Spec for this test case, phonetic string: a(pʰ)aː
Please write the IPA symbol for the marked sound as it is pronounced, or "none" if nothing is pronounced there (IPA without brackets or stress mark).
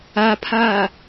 pʰ